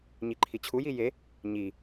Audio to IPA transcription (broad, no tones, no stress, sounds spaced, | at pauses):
ɲ i ǃʰ i t͡ɕʰ u j i j e | ɲ i